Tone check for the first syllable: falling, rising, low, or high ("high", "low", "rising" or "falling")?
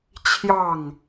falling